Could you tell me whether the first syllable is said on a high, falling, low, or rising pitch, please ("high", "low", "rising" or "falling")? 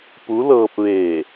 rising